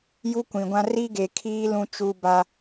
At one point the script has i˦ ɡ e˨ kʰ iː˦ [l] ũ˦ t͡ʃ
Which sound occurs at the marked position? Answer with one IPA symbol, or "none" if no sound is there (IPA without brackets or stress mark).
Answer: l